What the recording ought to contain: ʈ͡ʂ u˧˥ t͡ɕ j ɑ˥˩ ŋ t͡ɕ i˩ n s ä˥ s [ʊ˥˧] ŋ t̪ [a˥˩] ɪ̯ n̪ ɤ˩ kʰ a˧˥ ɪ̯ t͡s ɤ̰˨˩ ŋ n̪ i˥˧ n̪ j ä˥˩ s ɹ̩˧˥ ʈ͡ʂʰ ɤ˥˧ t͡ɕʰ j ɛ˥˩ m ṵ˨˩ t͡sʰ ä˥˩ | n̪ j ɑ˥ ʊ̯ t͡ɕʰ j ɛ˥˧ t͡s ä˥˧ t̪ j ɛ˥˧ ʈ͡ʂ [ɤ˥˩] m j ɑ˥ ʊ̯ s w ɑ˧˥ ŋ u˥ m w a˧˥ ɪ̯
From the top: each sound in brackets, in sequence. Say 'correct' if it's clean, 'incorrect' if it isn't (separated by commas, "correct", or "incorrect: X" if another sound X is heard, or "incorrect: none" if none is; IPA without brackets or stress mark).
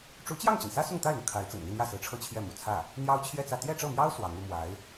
correct, correct, correct